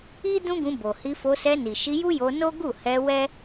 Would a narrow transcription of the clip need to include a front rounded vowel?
no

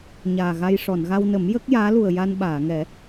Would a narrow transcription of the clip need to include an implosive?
yes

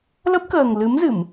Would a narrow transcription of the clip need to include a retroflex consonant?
no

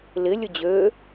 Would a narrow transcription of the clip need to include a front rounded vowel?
yes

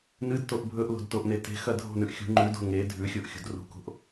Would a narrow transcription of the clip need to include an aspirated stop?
no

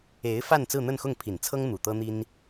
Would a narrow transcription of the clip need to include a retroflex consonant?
no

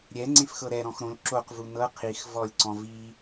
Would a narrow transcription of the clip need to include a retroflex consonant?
no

